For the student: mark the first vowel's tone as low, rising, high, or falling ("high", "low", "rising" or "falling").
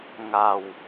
low